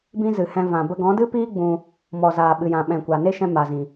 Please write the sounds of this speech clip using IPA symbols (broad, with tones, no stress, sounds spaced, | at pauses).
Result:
b ĩ˦ z ɨ˨ h ɛ̃˧ v ã˨ b ə˧ ɡ ɔ̃˨˦ d ɨ˦ p iː˦ ɡ͡b ũ˧ | m ɔ˨ z aː˨ ɓ ɨ˨ j ã˨ ɓ ɛ̃˨ kʷ a˨ n e˦ ʃ ɛ̃˧ m a˨ z ĩ˨